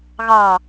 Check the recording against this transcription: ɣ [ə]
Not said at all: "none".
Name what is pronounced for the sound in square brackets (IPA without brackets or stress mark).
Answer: ɑ